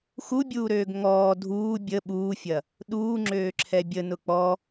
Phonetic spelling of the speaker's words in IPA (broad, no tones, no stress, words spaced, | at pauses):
xubʲuːɾøːɡ ŋɔː dʱuː bʲə ɓuːfʲɐ | ɗuːŋ͡ǁøːǁʰɛ bʲənʊ k͡pɔ